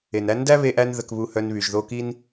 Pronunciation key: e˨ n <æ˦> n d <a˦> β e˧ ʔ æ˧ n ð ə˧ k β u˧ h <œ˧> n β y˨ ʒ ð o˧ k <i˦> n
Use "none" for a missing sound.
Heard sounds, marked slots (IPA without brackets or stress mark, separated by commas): æ˦, æ˦, œ˧, i˦